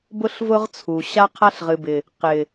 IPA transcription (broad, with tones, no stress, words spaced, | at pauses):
bʊ˦ɬvʊ˦ʁ t͡sʰu˨ ɕa˦qʰa˦ɬ ʁɨ˨bɪ˨ | qɪ˨